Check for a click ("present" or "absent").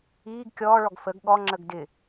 present